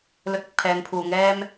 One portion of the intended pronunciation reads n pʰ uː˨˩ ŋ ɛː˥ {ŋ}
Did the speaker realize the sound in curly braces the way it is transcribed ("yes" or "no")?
no